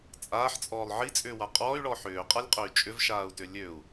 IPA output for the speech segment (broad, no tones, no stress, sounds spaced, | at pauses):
t͡sʼ aː ħ t͡sʼ ɔː lˠ ʕ i t͡sʼ ʏː w a qʼ ɔː y̯ ɭ ɔ ħ ʏː qʼ a lʲ qʼ ø y̯ t͡ʃʼ ʏ v ʃ aː u̯ t ʏ lʲ ø u̯